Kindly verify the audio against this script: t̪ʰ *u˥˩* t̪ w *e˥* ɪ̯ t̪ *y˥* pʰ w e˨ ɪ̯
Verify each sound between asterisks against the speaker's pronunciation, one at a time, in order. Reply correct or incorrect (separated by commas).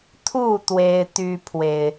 correct, correct, correct